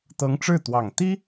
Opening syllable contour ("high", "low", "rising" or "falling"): rising